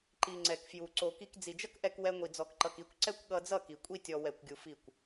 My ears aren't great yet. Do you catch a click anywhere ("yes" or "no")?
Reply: yes